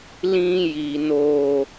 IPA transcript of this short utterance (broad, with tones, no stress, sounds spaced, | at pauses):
l ĩ˧ j i˨ n oː˨